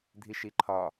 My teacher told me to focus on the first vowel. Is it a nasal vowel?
no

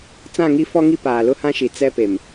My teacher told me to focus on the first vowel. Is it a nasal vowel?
yes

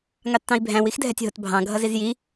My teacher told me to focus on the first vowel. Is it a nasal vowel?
no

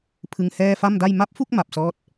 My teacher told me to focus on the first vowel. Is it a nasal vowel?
no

